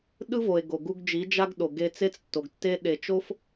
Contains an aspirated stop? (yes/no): no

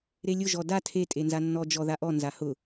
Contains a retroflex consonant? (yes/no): no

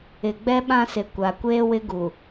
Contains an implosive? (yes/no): yes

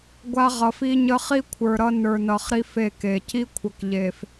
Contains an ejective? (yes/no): no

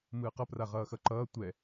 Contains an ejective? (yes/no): no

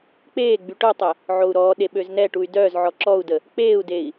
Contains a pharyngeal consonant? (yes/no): yes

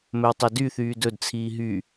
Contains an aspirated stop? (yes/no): yes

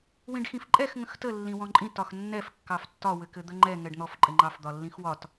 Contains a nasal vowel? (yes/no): yes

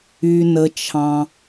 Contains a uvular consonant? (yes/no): no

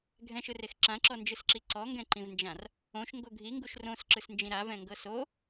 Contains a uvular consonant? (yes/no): no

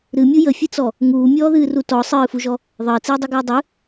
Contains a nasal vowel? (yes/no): no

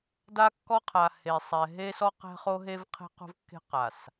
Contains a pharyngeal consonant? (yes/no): no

